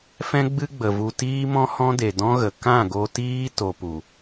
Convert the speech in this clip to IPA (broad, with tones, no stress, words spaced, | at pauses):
fɛ̃˦ ɡ͡bɨ˦ɡ͡bə˨vu˧ tiː˦mɔ̃˦hɔ̃˦de˨ dɔ̃˦ɣə˨ kã˦˨ɡo˧tiː˦ to˧pu˨